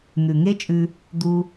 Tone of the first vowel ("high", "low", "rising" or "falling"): low